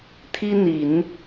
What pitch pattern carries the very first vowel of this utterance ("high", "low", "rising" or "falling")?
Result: high